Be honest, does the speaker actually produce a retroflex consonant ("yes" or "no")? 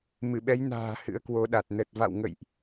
no